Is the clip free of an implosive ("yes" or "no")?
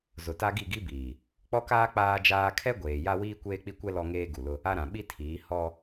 no